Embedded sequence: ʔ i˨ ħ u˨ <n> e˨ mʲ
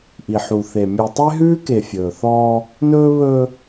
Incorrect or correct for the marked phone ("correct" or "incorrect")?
incorrect